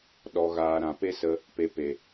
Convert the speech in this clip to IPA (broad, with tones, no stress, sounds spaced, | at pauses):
ɗ ɔ˧ ɣ aː˧ ɾ ã˨ p e˦ s ə˧ | p e˧ p e˨